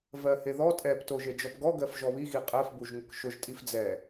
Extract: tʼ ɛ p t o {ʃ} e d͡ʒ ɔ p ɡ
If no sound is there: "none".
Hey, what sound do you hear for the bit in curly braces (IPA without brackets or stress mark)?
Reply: ʒ